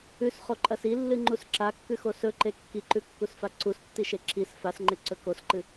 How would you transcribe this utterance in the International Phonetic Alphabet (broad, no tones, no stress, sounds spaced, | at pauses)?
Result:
ʉ s χ o ǃʼ ɐ s i lː ɨ ŋ͡ǃ u s ǁ a kː ʉ x o s ɵ ǃ e kː i ǃ ʉ kː u s f a ǀ u s tː i ʃ e ǁ i s f a s ŋ͡ǃ e ǀ ɵ k o s ǃ ɨ